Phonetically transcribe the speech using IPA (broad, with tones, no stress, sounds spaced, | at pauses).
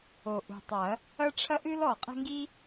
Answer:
o˨˩ ʔ ṳ˨˩ tˤ ɐ˨˩˦ | ɐ˦ ʈ͡ʂʰ ɐ˦ ʔ ɨ˦ l ɔ˨˩ qʼ ɛ̤˦ ŋ ɡ i˦